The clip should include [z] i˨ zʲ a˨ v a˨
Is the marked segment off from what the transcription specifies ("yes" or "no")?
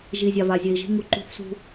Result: yes